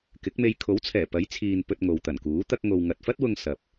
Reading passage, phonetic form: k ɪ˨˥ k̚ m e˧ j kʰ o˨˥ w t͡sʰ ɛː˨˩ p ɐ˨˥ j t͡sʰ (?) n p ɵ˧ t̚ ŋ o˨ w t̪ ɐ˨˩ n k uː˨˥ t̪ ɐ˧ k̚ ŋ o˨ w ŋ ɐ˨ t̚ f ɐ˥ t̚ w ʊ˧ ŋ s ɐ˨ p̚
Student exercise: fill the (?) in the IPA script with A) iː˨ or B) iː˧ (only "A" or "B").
A